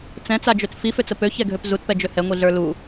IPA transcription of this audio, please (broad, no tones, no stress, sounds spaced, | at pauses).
t͡s ɛ̃ t͡s a d͡ʒ ø t f i f ø t͡s ə p ø ç ɛ ɡʱ ø p z u t p ɛ d͡ʒ ø h ɛ ŋʷ i ɮ ə˞ l u